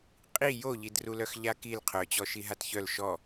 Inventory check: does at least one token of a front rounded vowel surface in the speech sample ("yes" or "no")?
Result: yes